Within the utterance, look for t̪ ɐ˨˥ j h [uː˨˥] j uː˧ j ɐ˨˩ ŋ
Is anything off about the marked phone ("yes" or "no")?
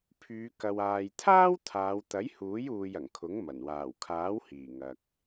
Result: no